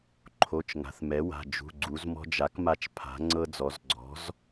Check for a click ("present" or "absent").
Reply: present